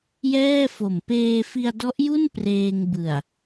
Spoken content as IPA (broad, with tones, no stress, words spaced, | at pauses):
jɛː˥˩fo˨˩m peː˧fi˧a̯dɔ˦˥ʔju˥˩n preː˧ŋbɯ˨˩a̯